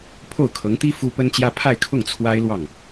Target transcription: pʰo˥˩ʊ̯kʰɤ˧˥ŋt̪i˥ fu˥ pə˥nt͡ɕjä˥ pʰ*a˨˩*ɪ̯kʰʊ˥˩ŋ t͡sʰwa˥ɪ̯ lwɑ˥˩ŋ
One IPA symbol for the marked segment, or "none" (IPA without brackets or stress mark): a˥˧